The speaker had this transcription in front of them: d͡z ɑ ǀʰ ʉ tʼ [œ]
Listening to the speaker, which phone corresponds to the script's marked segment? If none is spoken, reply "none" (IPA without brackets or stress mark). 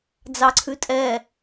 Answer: ɛ